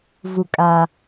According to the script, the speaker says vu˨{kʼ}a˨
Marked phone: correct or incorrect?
correct